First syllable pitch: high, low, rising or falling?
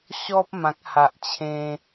high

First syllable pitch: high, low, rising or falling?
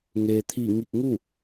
low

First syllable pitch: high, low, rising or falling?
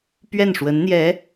falling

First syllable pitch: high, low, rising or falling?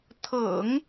low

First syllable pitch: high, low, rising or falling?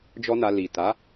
high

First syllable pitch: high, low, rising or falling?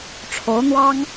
rising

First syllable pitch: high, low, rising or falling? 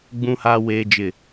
high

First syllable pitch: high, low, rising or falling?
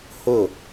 falling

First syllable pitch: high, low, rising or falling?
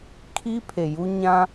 high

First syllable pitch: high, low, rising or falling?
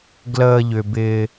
low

